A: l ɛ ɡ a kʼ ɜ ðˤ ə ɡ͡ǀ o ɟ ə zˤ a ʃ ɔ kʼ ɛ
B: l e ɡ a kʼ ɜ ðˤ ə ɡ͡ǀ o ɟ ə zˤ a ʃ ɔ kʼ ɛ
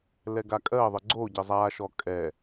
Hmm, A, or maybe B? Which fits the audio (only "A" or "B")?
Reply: A